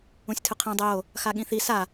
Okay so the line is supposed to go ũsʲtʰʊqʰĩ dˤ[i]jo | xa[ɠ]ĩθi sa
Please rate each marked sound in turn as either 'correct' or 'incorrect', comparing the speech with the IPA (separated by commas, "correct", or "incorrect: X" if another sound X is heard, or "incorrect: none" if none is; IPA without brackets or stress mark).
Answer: incorrect: ɪ, correct